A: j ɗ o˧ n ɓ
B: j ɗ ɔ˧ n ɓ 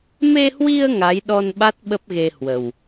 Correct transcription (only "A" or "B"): B